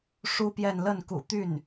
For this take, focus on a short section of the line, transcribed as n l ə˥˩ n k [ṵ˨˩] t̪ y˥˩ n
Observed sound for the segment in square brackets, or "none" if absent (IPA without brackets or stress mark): ṵ˨˩